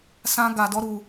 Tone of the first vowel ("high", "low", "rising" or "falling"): high